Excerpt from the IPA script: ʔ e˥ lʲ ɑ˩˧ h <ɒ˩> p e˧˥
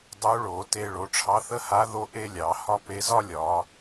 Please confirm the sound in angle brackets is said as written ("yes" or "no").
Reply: no